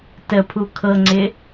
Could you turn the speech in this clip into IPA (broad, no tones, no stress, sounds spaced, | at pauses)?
t ə pʰ u kʰ ɤ ŋ͡ǀ ɪ